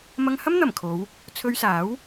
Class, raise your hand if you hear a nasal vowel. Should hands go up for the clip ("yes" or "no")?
no